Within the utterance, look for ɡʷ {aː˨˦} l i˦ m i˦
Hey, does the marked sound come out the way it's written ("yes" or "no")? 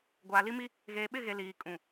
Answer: no